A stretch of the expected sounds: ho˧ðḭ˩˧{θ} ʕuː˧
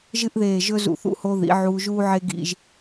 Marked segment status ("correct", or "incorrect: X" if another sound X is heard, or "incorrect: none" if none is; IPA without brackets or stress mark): incorrect: none